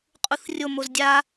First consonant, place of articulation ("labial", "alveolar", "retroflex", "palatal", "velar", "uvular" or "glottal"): uvular